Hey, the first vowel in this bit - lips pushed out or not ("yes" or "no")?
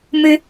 no